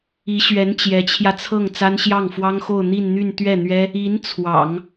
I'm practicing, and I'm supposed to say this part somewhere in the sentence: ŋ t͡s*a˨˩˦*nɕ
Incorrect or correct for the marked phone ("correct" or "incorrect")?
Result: incorrect